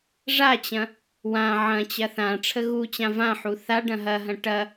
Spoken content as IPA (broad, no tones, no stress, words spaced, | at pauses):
ʐat͡ɕɐ̃ | wã ʕɐ̃t͡ɕɐ θã ʈ͡ʂʰəɣut͡ɕã vãħu θa ɖɐ̃ɦɐɦɐ̃ ʈɐ